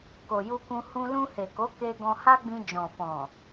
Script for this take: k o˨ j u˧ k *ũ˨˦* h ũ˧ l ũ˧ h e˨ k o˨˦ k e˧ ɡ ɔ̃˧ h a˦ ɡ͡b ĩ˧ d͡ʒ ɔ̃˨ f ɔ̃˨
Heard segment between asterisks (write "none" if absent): ũ˧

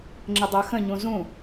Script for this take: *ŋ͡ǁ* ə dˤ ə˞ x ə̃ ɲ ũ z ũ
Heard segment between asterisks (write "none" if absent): ŋ͡ǁ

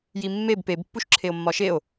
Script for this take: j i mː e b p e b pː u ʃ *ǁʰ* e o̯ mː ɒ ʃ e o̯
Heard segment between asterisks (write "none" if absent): ǁʰ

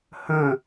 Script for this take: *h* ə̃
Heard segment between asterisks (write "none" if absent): h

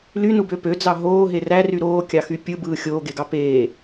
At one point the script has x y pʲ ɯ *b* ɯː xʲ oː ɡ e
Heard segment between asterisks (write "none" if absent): b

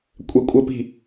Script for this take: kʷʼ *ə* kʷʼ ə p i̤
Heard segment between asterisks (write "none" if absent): ɛ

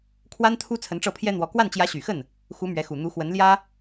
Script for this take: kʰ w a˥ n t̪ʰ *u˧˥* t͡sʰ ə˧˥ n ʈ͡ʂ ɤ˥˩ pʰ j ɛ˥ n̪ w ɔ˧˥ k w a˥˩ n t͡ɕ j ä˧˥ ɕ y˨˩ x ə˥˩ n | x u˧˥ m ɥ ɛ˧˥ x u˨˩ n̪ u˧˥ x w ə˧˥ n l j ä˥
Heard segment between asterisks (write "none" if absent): u˥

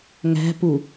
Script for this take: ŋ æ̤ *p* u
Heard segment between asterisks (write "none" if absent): p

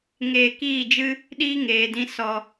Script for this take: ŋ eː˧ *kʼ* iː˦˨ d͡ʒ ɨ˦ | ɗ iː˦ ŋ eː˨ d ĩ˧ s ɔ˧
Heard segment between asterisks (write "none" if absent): k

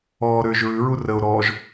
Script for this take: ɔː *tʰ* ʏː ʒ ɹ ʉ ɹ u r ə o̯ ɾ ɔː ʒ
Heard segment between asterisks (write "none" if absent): ɾ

